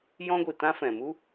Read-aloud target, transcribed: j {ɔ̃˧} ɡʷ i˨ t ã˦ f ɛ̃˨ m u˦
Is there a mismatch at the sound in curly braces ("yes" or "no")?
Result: yes